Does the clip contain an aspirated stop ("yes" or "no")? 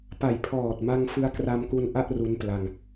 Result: yes